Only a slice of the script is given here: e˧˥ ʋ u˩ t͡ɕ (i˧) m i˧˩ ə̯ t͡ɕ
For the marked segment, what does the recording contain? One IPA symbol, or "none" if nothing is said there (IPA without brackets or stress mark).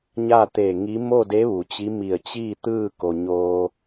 i˧˥